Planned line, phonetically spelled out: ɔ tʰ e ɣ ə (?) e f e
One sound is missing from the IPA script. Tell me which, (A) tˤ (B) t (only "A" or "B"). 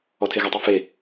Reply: A